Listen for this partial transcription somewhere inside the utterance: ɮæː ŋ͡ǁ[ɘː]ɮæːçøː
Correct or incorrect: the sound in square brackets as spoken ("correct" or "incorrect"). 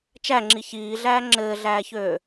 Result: correct